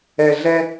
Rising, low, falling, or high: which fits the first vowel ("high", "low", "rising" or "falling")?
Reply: low